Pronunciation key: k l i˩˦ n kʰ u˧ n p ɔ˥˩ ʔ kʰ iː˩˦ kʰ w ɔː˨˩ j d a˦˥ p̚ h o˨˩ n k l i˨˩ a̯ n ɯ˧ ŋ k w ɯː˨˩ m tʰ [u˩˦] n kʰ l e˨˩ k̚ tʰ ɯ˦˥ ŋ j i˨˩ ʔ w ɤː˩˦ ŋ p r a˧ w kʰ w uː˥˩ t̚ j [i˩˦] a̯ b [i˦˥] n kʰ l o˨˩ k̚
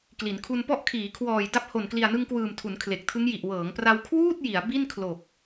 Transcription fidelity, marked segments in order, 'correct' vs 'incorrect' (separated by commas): correct, correct, incorrect